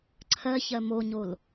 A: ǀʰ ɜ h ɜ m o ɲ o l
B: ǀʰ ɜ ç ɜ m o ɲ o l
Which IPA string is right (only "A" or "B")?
B